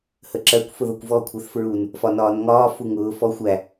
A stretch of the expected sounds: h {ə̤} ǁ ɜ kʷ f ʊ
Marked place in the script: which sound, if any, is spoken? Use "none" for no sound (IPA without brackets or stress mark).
ə